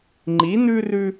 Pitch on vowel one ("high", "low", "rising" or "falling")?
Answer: rising